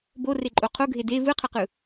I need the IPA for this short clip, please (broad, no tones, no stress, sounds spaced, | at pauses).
b o r e ǃʼ o qʰ o ɡʱ e d e v ɯ qʰ ʌ q ɯ